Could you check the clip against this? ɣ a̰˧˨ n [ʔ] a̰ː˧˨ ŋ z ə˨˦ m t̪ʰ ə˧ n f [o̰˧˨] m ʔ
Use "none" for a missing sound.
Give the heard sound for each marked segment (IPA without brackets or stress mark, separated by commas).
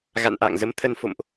ʔ, o̰˧˨